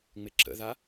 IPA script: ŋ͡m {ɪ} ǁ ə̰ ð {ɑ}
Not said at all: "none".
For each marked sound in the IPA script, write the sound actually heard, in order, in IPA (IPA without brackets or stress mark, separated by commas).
ɪ, a